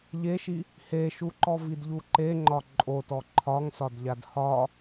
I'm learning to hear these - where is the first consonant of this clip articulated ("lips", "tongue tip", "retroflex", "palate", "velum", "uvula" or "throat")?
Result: palate